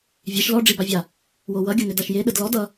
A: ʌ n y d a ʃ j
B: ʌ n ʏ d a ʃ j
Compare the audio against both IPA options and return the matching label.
B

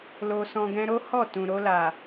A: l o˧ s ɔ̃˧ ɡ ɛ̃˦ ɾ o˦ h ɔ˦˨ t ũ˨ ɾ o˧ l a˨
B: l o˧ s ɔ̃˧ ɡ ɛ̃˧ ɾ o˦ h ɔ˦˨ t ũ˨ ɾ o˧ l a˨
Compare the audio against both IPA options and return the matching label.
B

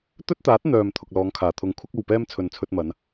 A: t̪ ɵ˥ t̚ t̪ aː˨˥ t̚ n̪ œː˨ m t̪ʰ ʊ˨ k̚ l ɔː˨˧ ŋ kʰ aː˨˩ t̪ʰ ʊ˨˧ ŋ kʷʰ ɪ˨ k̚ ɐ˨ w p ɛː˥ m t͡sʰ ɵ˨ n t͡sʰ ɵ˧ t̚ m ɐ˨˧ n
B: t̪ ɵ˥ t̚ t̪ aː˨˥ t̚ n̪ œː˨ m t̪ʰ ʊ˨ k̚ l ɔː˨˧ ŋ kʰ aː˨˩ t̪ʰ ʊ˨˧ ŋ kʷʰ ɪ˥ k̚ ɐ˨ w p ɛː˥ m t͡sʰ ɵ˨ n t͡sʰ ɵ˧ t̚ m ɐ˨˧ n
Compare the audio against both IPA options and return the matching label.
B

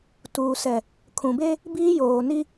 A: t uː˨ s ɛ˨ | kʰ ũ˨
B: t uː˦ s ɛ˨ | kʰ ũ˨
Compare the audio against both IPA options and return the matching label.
A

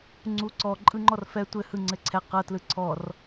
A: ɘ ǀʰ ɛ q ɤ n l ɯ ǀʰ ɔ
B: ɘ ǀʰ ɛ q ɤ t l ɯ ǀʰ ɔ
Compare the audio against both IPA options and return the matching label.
B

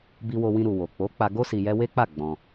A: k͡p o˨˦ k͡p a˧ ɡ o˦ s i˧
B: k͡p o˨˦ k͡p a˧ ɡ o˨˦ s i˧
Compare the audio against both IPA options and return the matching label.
A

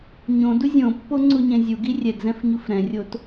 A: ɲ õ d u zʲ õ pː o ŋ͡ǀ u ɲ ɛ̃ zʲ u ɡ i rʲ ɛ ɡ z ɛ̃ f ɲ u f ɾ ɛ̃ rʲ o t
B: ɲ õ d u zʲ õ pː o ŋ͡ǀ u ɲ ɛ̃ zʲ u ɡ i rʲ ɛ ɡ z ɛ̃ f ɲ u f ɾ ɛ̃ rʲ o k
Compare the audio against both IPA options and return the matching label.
A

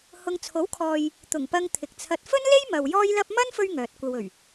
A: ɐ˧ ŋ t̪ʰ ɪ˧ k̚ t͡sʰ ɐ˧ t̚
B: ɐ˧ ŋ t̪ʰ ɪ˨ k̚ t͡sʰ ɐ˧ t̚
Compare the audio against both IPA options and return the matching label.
B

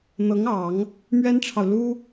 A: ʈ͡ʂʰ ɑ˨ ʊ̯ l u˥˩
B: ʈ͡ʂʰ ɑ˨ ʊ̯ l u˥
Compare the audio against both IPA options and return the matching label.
B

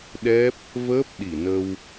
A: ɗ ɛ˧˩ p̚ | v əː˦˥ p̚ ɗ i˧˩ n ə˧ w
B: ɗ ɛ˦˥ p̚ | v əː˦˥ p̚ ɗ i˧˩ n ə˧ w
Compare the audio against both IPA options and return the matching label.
B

